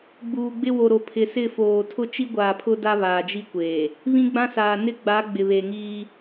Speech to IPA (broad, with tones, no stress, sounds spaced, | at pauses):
ɡ͡b uː˨ ɡ͡b ɪ˦ w o˨ ɾ o˨ pʰ ɪ˨ s ɪ˦˨ f oː˨ tʰ ʊ˦ t͡ʃ i˦ ɡʷ aː˨ pʰ ʊ˦ d a˦ β aː˨ d͡ʒ i˦ kʷ eː˨ | β ĩ˦ ɡ͡b ã˦ s aː˨ n ɪ˦ ɡ͡b a˨˦ ɡ͡b ɪ˨ β e˨ ŋ iː˦